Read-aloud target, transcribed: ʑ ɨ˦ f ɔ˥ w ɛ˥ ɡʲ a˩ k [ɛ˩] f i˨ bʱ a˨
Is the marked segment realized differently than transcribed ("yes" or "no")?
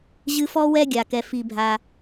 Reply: no